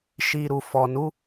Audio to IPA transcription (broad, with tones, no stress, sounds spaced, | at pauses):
ʃ i˨ ɾ u˨ f ɔ˨ n u˨˦